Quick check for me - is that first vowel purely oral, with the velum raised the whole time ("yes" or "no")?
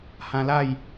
no